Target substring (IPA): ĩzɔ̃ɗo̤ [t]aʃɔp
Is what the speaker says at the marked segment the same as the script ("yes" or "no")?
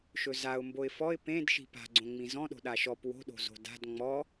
no